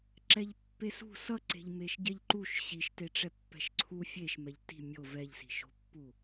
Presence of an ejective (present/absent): absent